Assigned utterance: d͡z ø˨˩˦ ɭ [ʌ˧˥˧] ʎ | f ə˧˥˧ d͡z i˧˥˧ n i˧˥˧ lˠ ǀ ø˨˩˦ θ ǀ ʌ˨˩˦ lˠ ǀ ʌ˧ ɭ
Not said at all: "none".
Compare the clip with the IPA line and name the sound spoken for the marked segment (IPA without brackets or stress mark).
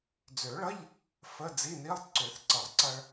ʌ˧˥˧